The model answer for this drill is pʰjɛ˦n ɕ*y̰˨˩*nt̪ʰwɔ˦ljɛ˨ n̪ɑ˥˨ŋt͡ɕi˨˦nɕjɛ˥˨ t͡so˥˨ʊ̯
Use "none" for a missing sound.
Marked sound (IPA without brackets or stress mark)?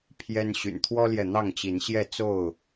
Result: y̰˨˩